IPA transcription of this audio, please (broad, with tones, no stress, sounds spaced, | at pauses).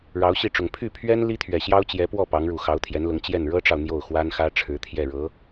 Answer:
ɻ ɑ˧˥ ʊ̯ ɕ i˥˩ ʈ͡ʂ ʊ˨˩ ŋ pʰ y˥˩ pʰ ɥ ɛ˥ n l i˥ t̪ʰ ɥ ɛ˨˩ ɕ j ɑ˥ ʊ̯ t͡ɕ j ɛ˧˥ p w ɔ˥˩ p ɑ˧˥ ŋ ɻ u˨˩ x ɑ˧˥ ʊ̯ t̪ʰ j ɛ˧˥ n l ʊ˧˥ ŋ t͡ɕ j ɛ˥˩ n ɻ ɤ˥ ʈ͡ʂ ɑ˨ ʊ̯ n̪ j o˥˩ ʊ̯ x w a˥ n x ä˥ ʈ͡ʂʰ ɻ̩˧˥ t̪ʰ j ɛ˥˩ ɻ ɤ˧˥